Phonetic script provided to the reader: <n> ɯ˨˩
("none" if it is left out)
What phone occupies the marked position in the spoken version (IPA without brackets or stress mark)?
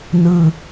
n